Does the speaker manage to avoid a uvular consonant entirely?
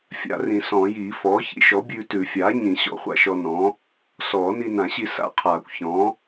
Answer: no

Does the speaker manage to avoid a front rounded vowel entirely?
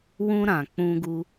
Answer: yes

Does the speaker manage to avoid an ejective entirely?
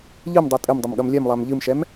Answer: no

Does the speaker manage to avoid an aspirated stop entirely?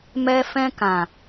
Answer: yes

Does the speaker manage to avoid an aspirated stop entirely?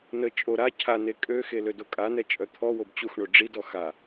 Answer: no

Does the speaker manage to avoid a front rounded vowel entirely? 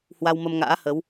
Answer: yes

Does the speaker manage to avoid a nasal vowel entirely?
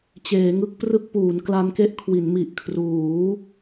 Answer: yes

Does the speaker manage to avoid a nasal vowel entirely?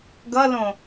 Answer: no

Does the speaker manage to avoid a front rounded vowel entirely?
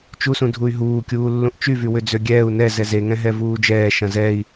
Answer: no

